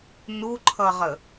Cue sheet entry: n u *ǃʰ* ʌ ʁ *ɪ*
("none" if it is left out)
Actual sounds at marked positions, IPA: ǃʰ, ə

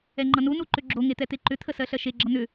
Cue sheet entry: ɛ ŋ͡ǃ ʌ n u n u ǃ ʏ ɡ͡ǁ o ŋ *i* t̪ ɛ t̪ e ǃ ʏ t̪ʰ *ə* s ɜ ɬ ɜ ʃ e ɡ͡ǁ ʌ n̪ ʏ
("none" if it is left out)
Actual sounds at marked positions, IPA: e, ə

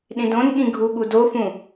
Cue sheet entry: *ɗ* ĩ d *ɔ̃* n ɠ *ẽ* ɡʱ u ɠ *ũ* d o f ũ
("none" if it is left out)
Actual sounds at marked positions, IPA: ɗ, õ, ĩ, u

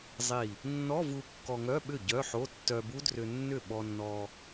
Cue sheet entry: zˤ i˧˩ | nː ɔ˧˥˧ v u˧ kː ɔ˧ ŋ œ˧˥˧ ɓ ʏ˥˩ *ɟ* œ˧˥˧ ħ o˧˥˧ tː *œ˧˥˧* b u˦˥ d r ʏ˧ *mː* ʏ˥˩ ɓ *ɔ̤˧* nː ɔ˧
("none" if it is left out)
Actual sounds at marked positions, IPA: ɟ, œ˧, nː, ɔ˧

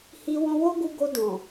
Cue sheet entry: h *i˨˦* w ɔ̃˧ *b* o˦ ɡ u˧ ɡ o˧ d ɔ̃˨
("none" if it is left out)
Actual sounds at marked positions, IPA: i˧, w

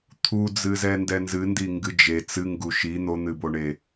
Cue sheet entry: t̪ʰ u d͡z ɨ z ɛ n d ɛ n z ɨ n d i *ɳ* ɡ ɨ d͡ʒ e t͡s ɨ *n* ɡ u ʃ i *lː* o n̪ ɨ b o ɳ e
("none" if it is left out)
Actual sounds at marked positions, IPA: ŋ, ŋ, n̪

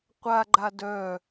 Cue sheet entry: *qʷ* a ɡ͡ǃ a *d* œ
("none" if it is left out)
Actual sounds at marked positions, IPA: qʷ, d

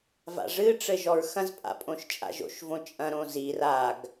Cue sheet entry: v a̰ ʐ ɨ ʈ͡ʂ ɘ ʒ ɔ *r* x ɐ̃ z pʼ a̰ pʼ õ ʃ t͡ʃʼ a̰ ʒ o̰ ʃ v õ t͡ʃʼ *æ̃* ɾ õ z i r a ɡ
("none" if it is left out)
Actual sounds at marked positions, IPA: ɹ, ɐ̃

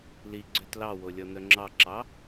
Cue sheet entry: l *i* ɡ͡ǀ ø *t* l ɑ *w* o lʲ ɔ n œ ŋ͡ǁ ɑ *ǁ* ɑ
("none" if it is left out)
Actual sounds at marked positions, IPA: i, t, w, ǁ

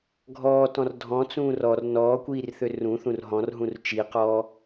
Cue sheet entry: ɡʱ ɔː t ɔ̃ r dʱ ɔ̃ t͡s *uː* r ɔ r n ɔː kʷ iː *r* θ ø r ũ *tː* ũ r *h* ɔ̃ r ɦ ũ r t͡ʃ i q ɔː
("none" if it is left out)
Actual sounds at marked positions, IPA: ũː, r, θ, ɦ

